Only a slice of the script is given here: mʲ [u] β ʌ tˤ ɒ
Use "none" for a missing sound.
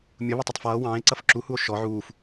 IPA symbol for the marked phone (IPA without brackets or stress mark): ʊ